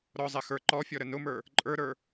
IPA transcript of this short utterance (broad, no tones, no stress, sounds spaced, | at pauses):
ɾ ɔ zˤ ɛ x ə˞ ǃ ɔ fʲ ɔ ɾ ə n ʊ m ə˞ | ǃʼ ə˞ ɾ ə˞